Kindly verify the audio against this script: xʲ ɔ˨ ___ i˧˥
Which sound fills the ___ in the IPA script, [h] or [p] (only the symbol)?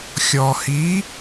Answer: h